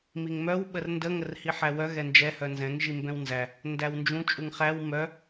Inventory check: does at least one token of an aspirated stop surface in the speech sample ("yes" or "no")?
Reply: no